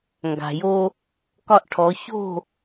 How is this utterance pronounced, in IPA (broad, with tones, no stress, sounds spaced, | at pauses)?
ŋ ɡ a̤˩ j o˧ | k ɒ˧ ʔ ʈʰ ɔ˩˧ ç o̤˥˨